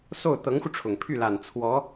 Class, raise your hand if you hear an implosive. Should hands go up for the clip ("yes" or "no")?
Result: no